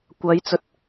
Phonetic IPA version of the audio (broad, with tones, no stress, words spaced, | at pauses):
kʷɐ˨˧j t͡sɵ˧t̚